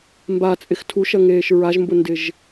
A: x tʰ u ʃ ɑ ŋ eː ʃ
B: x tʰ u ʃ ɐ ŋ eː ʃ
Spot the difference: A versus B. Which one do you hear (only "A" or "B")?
B